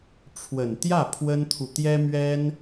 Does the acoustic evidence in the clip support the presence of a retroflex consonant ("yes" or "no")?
yes